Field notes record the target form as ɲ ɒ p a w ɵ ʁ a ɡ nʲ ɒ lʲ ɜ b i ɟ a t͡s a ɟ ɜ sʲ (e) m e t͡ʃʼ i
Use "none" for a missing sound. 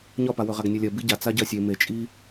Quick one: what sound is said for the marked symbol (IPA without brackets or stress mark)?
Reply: e